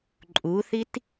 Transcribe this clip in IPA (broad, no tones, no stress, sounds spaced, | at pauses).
ǃʼ u θ i t